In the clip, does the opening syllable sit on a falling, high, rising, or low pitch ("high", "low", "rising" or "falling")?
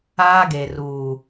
high